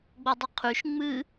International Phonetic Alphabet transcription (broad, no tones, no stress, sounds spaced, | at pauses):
ɡ͡b o dˤ ʏ qʰ y ʃ ŋ͡m ɨ